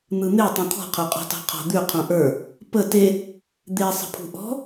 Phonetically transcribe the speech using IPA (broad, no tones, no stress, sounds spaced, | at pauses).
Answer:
n̪ ɯ n̪ e tˤ ĩ t̪ʰ ɔ̤ qʰ ə˞ qʼ ɔ̤ t ɑ̤ qʰ ɔ̤ d̪ ʉ qʰ ũ ʔ ə˞ | p ə t e | d̪ e sˤ ə̤ pʰ ṳ ʔ ɔ̤